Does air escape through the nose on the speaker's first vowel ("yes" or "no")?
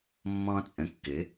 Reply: yes